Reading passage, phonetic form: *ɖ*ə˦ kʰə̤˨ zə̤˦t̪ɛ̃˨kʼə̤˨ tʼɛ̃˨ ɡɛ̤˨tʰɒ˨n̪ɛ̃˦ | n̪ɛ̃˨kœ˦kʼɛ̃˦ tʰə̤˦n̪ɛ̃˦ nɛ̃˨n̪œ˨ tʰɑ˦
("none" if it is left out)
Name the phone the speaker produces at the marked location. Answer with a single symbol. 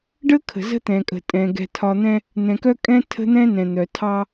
ɖ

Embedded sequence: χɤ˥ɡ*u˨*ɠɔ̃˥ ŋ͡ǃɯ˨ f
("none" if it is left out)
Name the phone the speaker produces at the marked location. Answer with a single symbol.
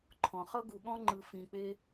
u˨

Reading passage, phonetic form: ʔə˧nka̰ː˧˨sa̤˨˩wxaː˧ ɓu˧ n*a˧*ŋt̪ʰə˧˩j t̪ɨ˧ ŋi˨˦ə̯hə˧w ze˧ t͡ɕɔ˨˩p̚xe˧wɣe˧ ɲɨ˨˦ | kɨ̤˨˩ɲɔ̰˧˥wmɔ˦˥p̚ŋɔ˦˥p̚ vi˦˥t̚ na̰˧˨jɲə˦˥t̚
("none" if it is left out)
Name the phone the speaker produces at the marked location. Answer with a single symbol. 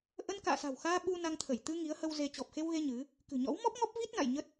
a˧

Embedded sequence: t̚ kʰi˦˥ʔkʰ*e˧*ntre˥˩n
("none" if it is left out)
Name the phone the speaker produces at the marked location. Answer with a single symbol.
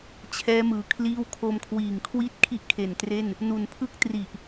e˨˩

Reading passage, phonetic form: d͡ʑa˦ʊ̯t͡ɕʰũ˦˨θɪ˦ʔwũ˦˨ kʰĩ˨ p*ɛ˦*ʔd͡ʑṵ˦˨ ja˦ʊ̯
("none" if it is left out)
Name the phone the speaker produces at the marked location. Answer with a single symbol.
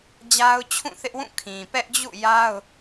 ɛ˦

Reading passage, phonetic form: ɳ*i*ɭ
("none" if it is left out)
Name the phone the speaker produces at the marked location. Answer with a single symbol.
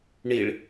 i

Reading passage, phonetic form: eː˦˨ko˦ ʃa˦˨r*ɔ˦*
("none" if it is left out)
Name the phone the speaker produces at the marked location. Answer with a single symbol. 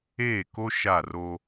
o˦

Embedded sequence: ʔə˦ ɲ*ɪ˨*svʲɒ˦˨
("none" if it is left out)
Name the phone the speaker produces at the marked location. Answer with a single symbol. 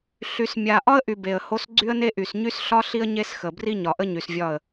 y˨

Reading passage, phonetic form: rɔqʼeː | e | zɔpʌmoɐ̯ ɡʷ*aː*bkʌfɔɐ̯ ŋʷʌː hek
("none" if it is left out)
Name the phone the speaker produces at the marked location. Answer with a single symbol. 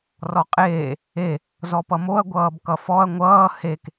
ʌː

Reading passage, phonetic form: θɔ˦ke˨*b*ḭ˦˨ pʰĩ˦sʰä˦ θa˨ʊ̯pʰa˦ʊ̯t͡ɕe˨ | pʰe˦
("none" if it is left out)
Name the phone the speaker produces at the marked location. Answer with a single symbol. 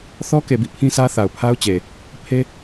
b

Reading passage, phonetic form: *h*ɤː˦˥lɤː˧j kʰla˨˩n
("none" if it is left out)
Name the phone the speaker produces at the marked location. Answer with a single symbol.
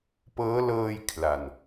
p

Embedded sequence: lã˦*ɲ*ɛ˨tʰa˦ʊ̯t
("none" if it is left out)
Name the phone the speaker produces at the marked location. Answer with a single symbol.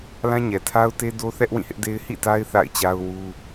ɲ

